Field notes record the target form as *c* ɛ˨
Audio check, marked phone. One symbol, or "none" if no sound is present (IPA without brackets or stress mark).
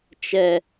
t͡ʃ